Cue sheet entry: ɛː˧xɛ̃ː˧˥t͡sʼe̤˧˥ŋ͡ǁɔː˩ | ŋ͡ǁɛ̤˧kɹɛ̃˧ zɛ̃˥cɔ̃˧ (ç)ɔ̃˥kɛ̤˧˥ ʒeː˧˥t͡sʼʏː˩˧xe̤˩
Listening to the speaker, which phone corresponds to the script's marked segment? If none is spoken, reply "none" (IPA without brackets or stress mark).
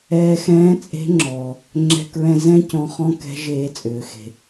χ